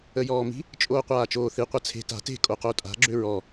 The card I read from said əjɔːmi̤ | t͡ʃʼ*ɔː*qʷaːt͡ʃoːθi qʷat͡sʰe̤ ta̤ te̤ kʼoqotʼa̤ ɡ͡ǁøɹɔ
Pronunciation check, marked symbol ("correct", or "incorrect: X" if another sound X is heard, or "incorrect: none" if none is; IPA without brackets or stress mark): incorrect: oː